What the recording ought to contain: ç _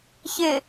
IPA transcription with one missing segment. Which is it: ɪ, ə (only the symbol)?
ɪ